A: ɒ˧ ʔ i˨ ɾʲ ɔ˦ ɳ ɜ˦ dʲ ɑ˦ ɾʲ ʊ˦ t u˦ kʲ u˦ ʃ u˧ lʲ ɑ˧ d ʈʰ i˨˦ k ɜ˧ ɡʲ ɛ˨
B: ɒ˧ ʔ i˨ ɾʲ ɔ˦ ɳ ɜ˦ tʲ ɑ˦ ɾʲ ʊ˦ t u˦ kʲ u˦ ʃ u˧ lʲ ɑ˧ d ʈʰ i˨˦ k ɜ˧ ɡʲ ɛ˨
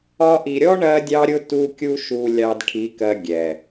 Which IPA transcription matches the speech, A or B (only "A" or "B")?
A